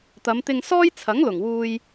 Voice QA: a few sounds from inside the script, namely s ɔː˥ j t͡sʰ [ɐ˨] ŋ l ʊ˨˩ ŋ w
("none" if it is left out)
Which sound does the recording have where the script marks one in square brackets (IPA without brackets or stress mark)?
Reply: ɐ˨˥